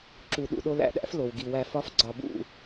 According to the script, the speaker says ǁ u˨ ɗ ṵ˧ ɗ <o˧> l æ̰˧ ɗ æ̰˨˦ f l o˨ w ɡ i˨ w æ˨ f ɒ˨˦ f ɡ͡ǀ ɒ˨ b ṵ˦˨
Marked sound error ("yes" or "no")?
no